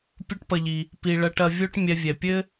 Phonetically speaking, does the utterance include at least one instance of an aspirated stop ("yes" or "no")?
no